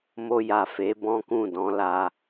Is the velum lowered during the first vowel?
no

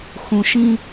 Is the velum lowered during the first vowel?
yes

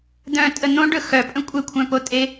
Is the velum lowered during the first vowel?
yes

